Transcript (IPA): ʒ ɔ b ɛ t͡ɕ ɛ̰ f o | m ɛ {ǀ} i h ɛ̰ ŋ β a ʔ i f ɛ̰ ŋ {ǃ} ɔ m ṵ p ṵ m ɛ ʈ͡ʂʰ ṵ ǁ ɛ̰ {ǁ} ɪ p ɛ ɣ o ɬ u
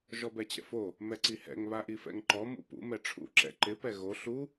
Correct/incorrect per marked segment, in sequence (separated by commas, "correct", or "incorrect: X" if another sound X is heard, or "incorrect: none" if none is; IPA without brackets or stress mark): correct, correct, incorrect: ǃ